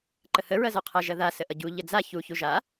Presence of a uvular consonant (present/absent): present